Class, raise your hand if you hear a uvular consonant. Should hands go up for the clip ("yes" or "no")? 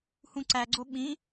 no